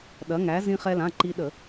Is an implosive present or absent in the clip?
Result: present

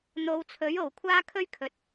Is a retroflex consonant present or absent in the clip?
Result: absent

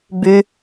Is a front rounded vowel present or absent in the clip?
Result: present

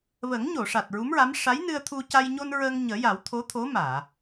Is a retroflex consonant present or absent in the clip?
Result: present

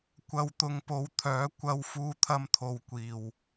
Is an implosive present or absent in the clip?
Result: absent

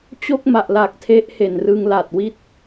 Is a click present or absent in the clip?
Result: absent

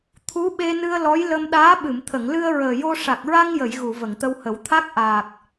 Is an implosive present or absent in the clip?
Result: present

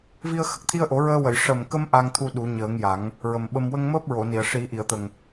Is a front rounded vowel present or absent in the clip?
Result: absent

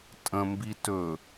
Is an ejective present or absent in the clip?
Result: present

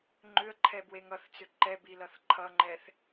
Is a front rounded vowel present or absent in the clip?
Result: present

